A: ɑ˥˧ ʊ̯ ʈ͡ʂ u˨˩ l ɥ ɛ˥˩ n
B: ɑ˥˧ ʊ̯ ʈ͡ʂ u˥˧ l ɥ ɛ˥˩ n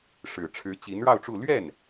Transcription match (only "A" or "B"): B